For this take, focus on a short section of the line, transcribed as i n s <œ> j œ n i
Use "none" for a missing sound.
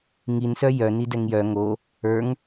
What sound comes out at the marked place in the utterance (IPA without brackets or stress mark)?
œ